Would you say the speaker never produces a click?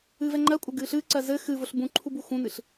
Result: no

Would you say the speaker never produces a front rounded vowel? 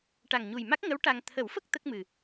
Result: yes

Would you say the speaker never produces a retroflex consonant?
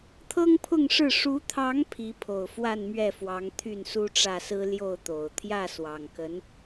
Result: no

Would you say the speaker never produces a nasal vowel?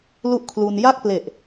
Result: yes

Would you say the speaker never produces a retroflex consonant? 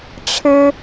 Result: no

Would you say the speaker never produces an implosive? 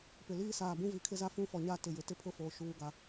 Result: yes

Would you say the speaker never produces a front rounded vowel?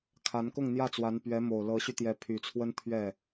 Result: no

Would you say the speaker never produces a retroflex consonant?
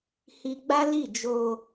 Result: yes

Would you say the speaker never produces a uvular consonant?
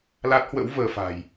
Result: yes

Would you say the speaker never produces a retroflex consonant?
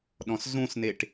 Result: no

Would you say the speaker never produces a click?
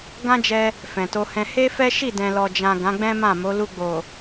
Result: yes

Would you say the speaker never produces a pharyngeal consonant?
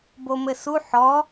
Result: no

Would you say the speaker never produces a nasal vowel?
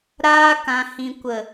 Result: no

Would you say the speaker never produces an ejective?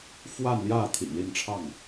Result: yes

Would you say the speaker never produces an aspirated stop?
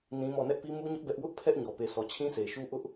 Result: no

